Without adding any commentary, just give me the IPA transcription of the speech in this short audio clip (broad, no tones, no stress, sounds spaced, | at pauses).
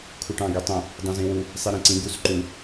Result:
kʰ u ʈ ɑ̃ ɡ y tˤ õ | dˤ õ z ĩ w u | sˤ i ɾ ĩ ǀ ĩ ɡ u s ǃ u